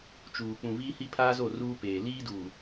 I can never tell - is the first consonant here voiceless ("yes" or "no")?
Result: yes